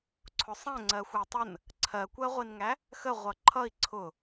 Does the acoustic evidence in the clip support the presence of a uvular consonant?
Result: yes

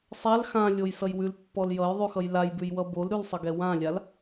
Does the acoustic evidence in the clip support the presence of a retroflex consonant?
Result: no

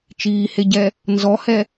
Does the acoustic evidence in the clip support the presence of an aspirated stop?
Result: no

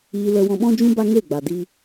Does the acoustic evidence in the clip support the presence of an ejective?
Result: no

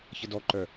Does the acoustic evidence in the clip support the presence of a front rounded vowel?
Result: yes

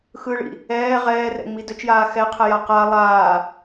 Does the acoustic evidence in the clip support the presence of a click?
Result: no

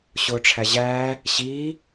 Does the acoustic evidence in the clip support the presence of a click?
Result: no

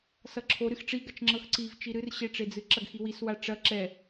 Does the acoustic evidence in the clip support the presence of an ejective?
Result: no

